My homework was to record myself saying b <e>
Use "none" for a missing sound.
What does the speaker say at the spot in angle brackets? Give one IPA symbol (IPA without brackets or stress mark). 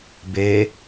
e